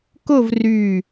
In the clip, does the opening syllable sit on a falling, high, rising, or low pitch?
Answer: falling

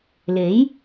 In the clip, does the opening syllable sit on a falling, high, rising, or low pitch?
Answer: rising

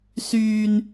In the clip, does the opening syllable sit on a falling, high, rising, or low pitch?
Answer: low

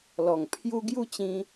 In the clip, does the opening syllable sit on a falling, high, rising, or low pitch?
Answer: low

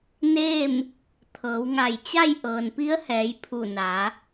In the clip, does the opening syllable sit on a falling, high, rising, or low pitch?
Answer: falling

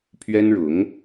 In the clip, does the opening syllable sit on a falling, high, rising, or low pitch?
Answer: high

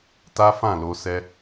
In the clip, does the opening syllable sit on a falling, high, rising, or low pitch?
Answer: high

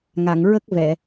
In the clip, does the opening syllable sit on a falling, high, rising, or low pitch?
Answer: low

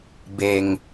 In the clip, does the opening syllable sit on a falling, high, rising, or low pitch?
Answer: low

